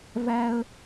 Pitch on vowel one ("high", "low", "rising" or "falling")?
high